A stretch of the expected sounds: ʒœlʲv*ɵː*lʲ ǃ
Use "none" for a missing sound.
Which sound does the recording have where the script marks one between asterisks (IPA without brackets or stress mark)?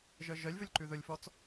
ɵ